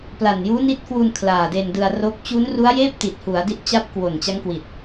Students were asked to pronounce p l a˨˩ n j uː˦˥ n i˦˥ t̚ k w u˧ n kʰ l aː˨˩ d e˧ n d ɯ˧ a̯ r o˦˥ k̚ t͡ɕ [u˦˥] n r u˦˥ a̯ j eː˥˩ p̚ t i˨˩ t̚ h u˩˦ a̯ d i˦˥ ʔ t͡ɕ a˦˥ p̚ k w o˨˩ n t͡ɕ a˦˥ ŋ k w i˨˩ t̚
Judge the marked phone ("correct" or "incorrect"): correct